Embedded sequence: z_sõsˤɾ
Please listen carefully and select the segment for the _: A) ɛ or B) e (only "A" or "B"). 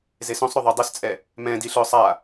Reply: B